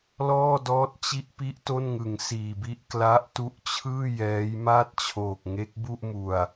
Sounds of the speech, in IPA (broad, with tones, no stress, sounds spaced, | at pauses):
l ɔː˥˩ d ɔː˦˥ t̚ t͡ɕ i˦˥ ʔ p i˦˥ ʔ t o˥˩ n ŋ ɯ˨˩ ŋ s iː˨˩ b i˦˥ ʔ k l a˦˥ ʔ t u˦˥ ʔ t͡ɕʰ ɯː˥˩ j ɛː˦˥ j m aː˥˩ t̚ t͡ɕʰ oː˨˩ k̚ ŋ e˦˥ k̚ b u˥˩ ʔ m u˨˩ a̯